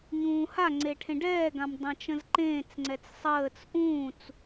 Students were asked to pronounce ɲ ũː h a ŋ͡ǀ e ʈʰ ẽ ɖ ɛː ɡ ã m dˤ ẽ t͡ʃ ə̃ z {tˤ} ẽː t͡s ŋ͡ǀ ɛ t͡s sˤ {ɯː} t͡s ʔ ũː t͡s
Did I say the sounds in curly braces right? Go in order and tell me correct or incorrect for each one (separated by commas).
incorrect, incorrect